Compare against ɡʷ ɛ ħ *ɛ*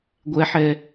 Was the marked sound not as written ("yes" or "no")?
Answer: no